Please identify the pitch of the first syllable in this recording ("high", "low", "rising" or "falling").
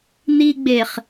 high